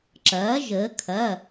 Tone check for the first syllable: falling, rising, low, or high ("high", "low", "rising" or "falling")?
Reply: rising